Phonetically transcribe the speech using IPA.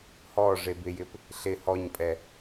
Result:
h ɔ ʐ e b ɪ j ɪ p | ɬ ɪ h ɔ ɲ pʼ ɛ

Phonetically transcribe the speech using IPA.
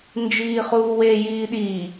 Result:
n d͡ʒ iː χ uː w e j iː ɗ i

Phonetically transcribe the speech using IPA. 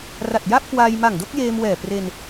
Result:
r a˨˩ t̚ j a˥˩ p̚ k w aː˧ j m a˨˩ ŋ d o˥˩ k̚ j eː˧ m w ɛː˨˩ p r e˧ n

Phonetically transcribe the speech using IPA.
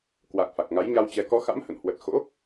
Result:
k w a˨˩ k̚ f a˨˩ k̚ ŋ a˨˦ j ɲ a˧ w t͡ɕ ɛ˨˦ k ɔ˨˦ x a̰˧˥ m h ə̰˧˨ n h w ə˨˩ t̚ x o̰˧˥

